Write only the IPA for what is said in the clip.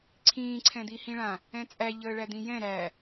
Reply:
ǀʰ ĩː ǀʰ ɛ̃ d̪ i h ĩ ɭ ã | ɛ̃ t͡sʼ æ ʎ əː ɭ æ d̪ ĩ j ɛ̃ ɾ æ

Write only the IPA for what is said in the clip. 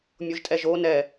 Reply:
mʲ o ʒ tʼ ɛ ʒ o n ɛ

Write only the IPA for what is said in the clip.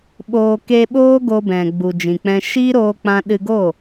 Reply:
ɓ oː˧ k e˧ ɓ oː˦ ɡ o˧ b ɛ̃˨ ɡ͡b u˨ d͡ʒ ĩ˨ k͡p ɛ̃˧ ʃ iː˦ ɾ oː˧ k͡p ã˧ ɗ ɨ˧ ɡ o˦˨

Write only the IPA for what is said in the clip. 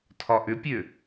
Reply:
tʰ ɒ ʔ ʏ pʲ ø

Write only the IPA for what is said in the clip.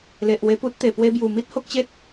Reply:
l e˨ ʔ w e˧ p u˦ t̚ t̪ e˨˩ p w e˧ b j u˨˩ m i˦ t̚ h o˦ k̚ t͡ɕ e˦ t̚

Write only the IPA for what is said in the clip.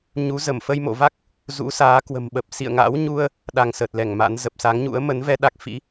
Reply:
ɲ u˨˦ z ə˧˩ m f ə˧ j m o̰˧˨ v a˦˥ k̚ | z ṵ˧˥ s aː˨˦ k w ə̤˨˩ m ɓ ə˨˩ p̚ s ḭ˧˨ ə̯ ŋ a̰˧˥ w ɲ u˧ ə̯ | ɗ a˧ ŋ s ə˨˩ t̚ l ɛ˧˩ ŋ m a̰˧˥ n z ə˨˩ p̚ s a˨˦ ŋ ɲ ṵ˧˥ ə̯ m ə˨˦ n v ɛ˧ ɗ a˦˥ k̚ f ḭ˧˥

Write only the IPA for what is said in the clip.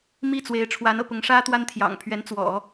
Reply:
m i˥˩ t͡s w e˧˥ ɪ̯ ʈ͡ʂʰ w a˧˥ n ɤ̰˨˩ p ʊ˧˥ ŋ ʂ ä˥ t̪ w a˥ n t̪ʰ j ɑ̰˨˩ ŋ pʰ ɥ ɛ˧˥ n t͡s w ɔ̰˨˩˦

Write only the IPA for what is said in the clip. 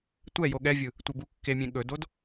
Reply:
tʷ ɛ j o ɠ ɛ vʲ ɯ | tʷ ɘ b u kː e mʲ ẽ ɠ ɵ d o d

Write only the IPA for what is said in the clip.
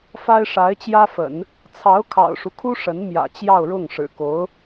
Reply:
f a˥ ɪ̯ ʂ a˧˥ ɪ̯ t͡ɕ j ä˥ f ə̰˨˩˦ n | t͡sʰ ɑ˧˥ ʊ̯ kʰ ɑ̰˨˩ ʊ̯ ʂ u˦ kʰ u˥ ʂ ə˧˥ n m j ä̰˨˩ t͡ɕ j ɑ˥˧ ʊ̯ ɻ ʊ˥˩ ŋ ʂ ɻ̩˨˩ k o˧˥ ʊ̯

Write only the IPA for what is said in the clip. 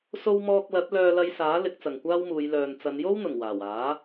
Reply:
s o˥ w m ɔː˧ k̚ l ɐ˨˥ t̚ l œː˧ l ɐ˧ j s aː˨˥ l ɪ˨˥ k̚ t͡s ɐ˨ ŋ kʷ aː˥ w m uː˨˧ j l œː˨ n t͡s ɐ˨˧ n j o˥ w n̪ ʊ˨˩ ŋ w aː˨˩ w aː˨˥

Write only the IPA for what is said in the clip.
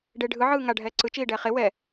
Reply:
ɖ e ɖʱ ɯ ʕ ɯː ŋ a ɖʱ ɛː ǀ ɯ t͡ʃ iː ɖ ɛː χ e w ɛ

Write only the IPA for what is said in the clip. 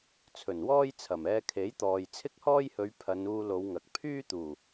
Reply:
t͡sʰ ɵ˨˩ n w ɔː˥ j t͡sʰ ɐ˨˩ m ɛː˧ kʰ e˨˥ j t̪ ɔː˨ j t͡sʰ ɪ˥ k̚ h ɔː˥ j h ɵ˨˧ ɥ pʰ ɐ˨˧ n uː˧ l o˨˧ w ŋ ɐ˨ k̚ pʰ yː˥ t̪ uː˨˩

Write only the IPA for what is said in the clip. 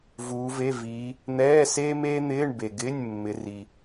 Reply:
v uː˨˦ v e˧˥˧ v iː˨˦ | n̪ ɛː˧˥˧ s eː˥ m eː˥ n̪ ɪː˧˥˧ ɳ b e˨ ɡ ɪː˧˥˧ nʲ mː ɪ˨˦ r i˨

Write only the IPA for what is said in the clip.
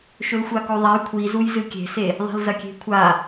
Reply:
ʃ ɵ l xʷ a k o ðˤ a j kʷʰ i z u j z ɨ kʲ e̤ s e | ðˤ e̤ l z ɐ kʲ e̤ kʷʰ a

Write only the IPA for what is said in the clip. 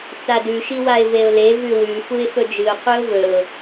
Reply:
t͡s a d ʉ ʃ i w a ɪ̯ v e ʊ̯ l e v ʉ w ʉ f u ɪ̯ f ɵ d͡ʒ ɨ ʊ̯ qʷ ɨ ʊ̯ v ɵ ʊ̯

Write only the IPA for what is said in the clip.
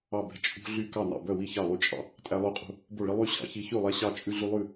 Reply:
ɑ˥˩ b ɛ̤˥˩ t͡ʃʼ ṳ˦ ɮ y˥˩ k ɑ˥˩ n ɑ̰˥˩ b œ˥˩ w i˥˩ ç ɑ˥˩ lˠ y˦ t͡ʃʼ ɑ̰˦ | tʼ æ˦ lˠ ʉ˥˩ qʼ ṳ˥˩ | b o˥˩ ɭ i˦ lˠ y˥˩ ɕ ɑ̰˦ ç i˦ ç ʉ˥˩ lˠ æ˦ ɕ ɑ˥˩ t͡ʃʼ ʉ˦ ɮ y˦ lˠ ʉ˥˩

